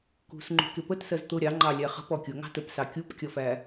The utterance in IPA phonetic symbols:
k ṳ s ŋ͡ǃ ṳ k ɪ p ə t s ɜ z t̪ ʊ ɾʲ ɑ ŋ͡ǃ ɑ lʲ æ χ ə̤ p ɔ kʲ ʊ ŋ ɑ̤ t ə p s ɑ kʲ u p kʲ ʌ f æ

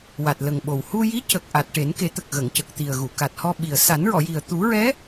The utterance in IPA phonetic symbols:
w a˨˩ t̚ l ə˨˩ ŋ ɓ o˨˩ w h u˧ j i˧˥ c ə˨˩ k̚ ʔ a˨˩ t̚ ʈ e˨˩˦ n k e˨˩˦ t̪ ə˨˩ k̚ ɣ ə˨˩˨ ŋ c ə˨˩ k̚ t̪ i˨˩ ə̯ ɣ u˨˩˨ k a˨˩ t̚ h ɔ˧ ɓ i˨˩ ə̯ s a˨˩˦ n ɹ ɔ˨˩˨ j i˨˩ ə̯ t̪ u˨˩˦ ɹ ɛ˧˥

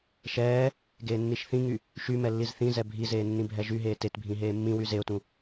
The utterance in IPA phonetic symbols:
ʃ ɛː | ɡ eː nː i ʃ θ ĩ ŋ y | ʃ y m ɛ lː i z θ ĩ z ɛ bʱ i z eː nː ĩ bʱ ɛ ʒ y ɦ eː t e t bʱ ĩ ɦ eː mː ĩ w y z e ʊ̯ t ũ

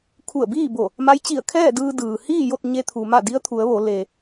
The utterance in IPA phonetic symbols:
kʰ u˧˩ ə̯ b iː˥˨ b o˧˩ | m a˧˥ j t͡ɕ i˧˩ ə̯ kʰ ɛː˥˨ d ɯː˧ d ɯː˩ h iː˥˨ j o˥˨ t̚ ɲ e˧ t̪ʰ u˩ m a˧˩ d i˧˥ ə̯ t̪ʰ u˩˧ ə̯ ʋ o˩˧ l e˩

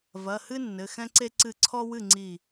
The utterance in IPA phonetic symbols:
v ɐ˩˧˩ h ɨ˦ nː ɘ˩˧˩ x ɛ̃˦ ǀ e˦ ǀ ɨ˧˩ ǀʰ ɔ˦ w ɨ˥˩ ŋ͡ǀ i˧˩

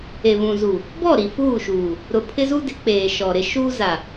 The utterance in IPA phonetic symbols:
e˨ β ũ˨ z u˨ | b ɔ˦˨ ɾ i˨ f uː˦˨ ʃ uː˨ | ɾ ʊ˨ pʰ ɪ˦ z u˦ d ɪ˨˦ k͡p eː˨ ʃ ɔ˨ ɾ ɪ˦ ʃ uː˦ z a˨

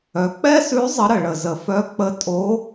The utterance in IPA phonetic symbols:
œ˩ k͡p ɛ˥ s ʉ˧˥ zˤ ə˧˥ ɾ ə˩ ɭ ə˩ z ə˩ f œ˧˥ k͡p ə˧˥ tʼ o˧˥

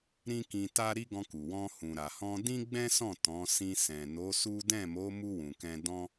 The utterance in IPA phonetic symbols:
ɾ ĩ˦ k ĩ˧ t a˦ ɾ i˦ ɡ ɔ̃˧ k u˨ w ɔ̃˧ h ũ˨ ɾ a˨ h ɔ̃˧ d ĩ˦ ɡ͡b ɛ̃˦ s ɔ̃˦˨ t ɔ̃˨˦ s ĩ˧ s ɛ̃˨ n o˨˦ s u˦ d ɛ̃˦˨ m o˨˦ m u˧ w ũ˨ k ɛ̃˧ d ɔ̃˦

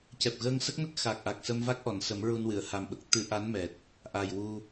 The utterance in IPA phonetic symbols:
c ɛ˨˩ p̚ ɣ əː˧ ŋ s ə˦˥ k̚ n ə˦˥ k̚ x a˨˩ k̚ ʔ a˨˩ k̚ s ə˧ m v a˦˥ k̚ ʔ ɔ˨˩˨ n s ə˨˩˦ m ɹ u˧ n w ɨ˨˩˨ ə̯ h a˨˩ m ɓ ə˨˩ k̚ t̪ ɨ˧ ʔ a˧˥ n m ɛ˨˩ t̚ | ʔ a˨˩ j w u˧

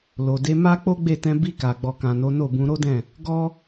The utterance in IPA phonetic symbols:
l o˨ d e˨˦ m a˦ k͡p o˦ ɡ͡b e˦˨ t ɛ̃˧ b i˧ k a˨ ɡ͡b ɔ˨ k ã˨ n o˨˦ n o˦˨ b ũ˧ ɾ o˦ d ɛ̃˦˨ | ɡ ɔ˦

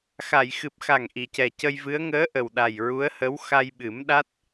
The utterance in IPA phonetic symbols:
x a˨˩˨ j x ɨ˨˩ p̚ x a˨˩ ŋ ʔ i˨˩˨ c ɛ˨˩ c ə˧ j v ɨ˧˥ ə̯ ŋ əː˧˥ ʔ ə˨˩ w ɗ a˨˩ j ɹ u˧˥ ə̯ h ə˧˥ w x a˧ j ɓ ɨ˨˩˦ m ɗ a˦˥ t̚

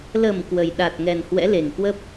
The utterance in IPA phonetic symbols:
l ə˨˩ m k w ə˨˩ j ɗ a˨˩ t̚ ŋ ɛ˨˩ n h w ɛ̰˧˥ l e˨˩ ŋ k w ə˦˥ p̚

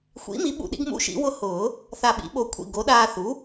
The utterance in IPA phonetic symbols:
xʷ ḭ˩˥ m i˩˥ ɓ ṵ˧˩ ɗ ḭ˧ ɡ m ṵ˧ ʃ ḭ˨˩˦ w ʊ˧ h ʊː˨˩˦ | θ a˧˩ ɓ ḭ˩˥ ɓ o˧˩ kʷʰ ḭ˧˩ ɡ o˩˥ ɗ aː˧ θ u˩˥

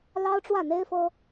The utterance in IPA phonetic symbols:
l ɑ˥ ʊ̯ ʈ͡ʂ w ä˥˩ n̪ e˥ ɪ̯ f ɤ˥

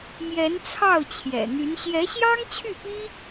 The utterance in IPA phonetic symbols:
m j ɛ˧˥ n t͡sʰ ɑ˥˩ ʊ̯ t͡ɕʰ j ɛ̰˨˩ n̪ y˧˥ n ɕ j ɛ˧˥ ɕ j ɑ˥ ŋ t͡ɕʰ y˥˩ p i˥

